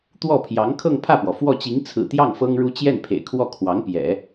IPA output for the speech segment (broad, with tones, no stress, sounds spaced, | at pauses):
t̪ w ɔ˥˩ pʰ j ɑ˧˥ ŋ kʰ ɤ˥˧ ŋ pʰ ä˥˩ p w ɔ˩ f w ɔ˥˩ t͡ɕ i˧˥ ŋ t͡sʰ ɹ̩˨˩ t̪ j ɑ˥˩ ŋ f ɤ˥ ŋ ɻ u˥ t͡ɕ j ɛ˥˩ n pʰ ḛ˨˩ ɪ̯ kʰ w ɔ˥˩ kʰ w ɑ˧˥ ŋ p j ɛ̰˨˩˦